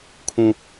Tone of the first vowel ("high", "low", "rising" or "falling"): low